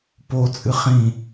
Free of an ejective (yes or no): no